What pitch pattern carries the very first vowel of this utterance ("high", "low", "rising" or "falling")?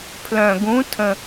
low